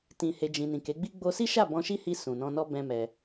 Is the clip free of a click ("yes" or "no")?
yes